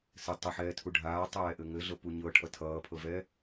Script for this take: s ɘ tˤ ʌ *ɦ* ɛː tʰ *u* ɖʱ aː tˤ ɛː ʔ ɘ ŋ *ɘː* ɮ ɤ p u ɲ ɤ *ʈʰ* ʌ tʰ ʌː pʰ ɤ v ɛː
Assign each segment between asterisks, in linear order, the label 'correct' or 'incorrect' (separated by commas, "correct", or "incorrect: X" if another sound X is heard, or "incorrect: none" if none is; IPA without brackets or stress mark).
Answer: incorrect: ħ, correct, incorrect: ɘ, correct